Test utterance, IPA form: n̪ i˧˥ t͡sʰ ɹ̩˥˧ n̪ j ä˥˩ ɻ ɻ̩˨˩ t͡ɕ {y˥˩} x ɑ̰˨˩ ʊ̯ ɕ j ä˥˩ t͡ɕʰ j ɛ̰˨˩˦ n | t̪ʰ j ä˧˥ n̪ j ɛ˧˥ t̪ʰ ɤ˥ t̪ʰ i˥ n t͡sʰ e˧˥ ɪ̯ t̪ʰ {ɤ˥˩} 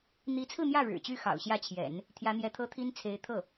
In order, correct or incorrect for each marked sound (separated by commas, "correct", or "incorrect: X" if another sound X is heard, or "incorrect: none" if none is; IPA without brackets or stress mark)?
correct, correct